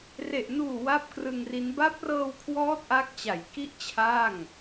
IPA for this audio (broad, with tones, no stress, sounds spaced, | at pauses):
r e˨˩ ʔ n uː˨˩ w a˥˩ p̚ k r ɯ˧ ŋ r i˦˥ n b a˦˥ p̚ r ɤː˧ w kʰ w ɔː˦˥ t̚ ʔ a˦˥ k̚ t͡ɕ a˩˦ j k i˥˩ ʔ t͡ɕʰ aː˥˩ ŋ